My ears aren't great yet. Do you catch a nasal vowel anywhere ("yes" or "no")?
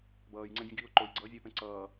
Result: yes